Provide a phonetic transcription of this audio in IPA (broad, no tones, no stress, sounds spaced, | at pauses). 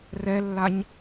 r ɛ lː a ɲ